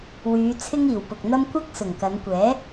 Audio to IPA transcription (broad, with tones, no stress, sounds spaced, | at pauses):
w yː˨˧ t͡sʰ ɪ˥ ŋ iː˨˩ w p ʊ˨ k̚ n̪ ɐ˥ m kʷ ɐ˥ k̚ s ʊ˨˩ ŋ k ɐ˨˧ n kʷ ɛː˨˥